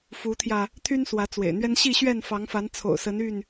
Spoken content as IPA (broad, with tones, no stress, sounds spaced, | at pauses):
f u˨˦ t̪ʰ j ä˧ | t̪ʰ y˦ n s w ä˨˦ t͡s w ḛ˨˩ ɪ̯ n̪ ɥ ɛ˦ n ɕ i˥˨ ɕ ɥ ɛ˥˨ n f ɑ˨˦ ŋ f a˨˦ n t͡sʰ o̰˨˩ ʊ̯ s ə˨˦ n y˥˨ n